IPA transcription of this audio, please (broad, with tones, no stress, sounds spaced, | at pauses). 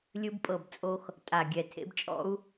lʲ ɯ˥ b pʼ ɤ˥˩ b t͡sʼ o˥ x | tʼ a˧˩ ɡʲ ɛ˧˩ tʰ ḛ˥ b t͡ʃʼ ɔ̰˥ u̯